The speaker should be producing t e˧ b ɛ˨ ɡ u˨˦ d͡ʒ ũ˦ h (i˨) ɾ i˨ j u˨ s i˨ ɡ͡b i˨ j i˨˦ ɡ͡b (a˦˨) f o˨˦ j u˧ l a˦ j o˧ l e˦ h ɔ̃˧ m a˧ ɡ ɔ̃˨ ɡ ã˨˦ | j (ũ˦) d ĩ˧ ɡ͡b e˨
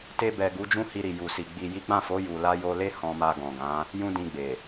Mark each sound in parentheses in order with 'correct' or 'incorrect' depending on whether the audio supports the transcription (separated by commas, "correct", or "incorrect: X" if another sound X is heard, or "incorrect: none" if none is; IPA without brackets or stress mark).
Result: incorrect: i˧, incorrect: ã˦˨, correct